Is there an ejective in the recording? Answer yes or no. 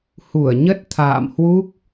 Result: no